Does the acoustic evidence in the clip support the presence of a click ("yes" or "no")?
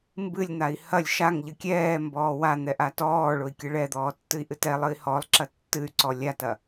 yes